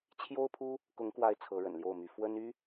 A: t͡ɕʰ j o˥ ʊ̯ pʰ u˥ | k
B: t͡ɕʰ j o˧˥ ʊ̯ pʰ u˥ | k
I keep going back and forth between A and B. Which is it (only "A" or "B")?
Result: A